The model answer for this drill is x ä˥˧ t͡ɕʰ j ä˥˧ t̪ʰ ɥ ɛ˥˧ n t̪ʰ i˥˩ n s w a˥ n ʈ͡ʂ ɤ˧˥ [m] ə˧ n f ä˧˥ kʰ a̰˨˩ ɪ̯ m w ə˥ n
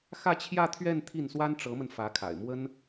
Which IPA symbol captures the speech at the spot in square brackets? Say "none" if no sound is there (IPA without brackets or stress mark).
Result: m